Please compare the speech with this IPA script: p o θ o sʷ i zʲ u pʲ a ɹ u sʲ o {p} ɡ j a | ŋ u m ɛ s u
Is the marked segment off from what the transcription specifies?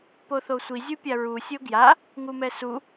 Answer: yes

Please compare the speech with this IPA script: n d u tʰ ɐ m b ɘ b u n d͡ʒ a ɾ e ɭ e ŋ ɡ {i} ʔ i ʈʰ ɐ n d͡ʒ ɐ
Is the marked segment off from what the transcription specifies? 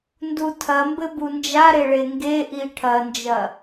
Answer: yes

